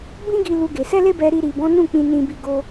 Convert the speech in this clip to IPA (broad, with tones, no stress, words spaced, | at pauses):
bĩ˦ɡi˧ lu˧ɡe˨ sɛ˧le˧ bɛ˧ɾi˧ ɾi˨bɔ̃˨˦ nũ˦˨k͡pĩ˧ nĩ˧bi˧ ɡo˧